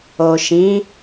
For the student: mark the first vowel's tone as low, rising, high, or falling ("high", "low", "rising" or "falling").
low